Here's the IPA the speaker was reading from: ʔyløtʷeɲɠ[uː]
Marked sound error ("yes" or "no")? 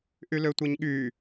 yes